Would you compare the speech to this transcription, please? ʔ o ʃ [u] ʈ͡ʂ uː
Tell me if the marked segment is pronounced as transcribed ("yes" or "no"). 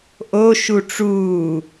yes